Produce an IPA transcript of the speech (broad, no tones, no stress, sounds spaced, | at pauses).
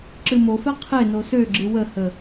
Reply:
ǁ ɨ m o f ɛ qʰ e n o s ø ɡ͡ǁ ɨ w ə h ə